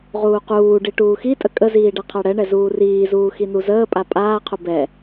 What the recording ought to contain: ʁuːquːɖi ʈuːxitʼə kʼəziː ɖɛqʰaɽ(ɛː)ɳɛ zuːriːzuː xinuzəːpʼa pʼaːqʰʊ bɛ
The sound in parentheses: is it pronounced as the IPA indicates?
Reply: no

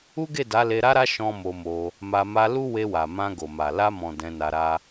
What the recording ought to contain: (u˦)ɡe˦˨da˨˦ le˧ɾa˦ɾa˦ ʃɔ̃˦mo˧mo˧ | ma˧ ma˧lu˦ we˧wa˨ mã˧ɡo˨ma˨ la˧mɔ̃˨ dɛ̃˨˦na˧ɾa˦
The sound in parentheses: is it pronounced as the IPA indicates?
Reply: yes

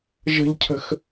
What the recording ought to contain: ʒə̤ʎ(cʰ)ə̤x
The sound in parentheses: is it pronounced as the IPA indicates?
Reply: yes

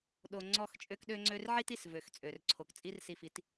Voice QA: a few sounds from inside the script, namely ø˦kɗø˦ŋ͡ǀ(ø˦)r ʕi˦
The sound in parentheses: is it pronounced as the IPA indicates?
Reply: yes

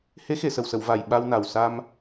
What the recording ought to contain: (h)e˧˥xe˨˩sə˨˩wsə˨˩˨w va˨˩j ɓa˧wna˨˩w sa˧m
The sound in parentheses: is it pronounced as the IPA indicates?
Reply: yes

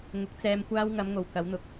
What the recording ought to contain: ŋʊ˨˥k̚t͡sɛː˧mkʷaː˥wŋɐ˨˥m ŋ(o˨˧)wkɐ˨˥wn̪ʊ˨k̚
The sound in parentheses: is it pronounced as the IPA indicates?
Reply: no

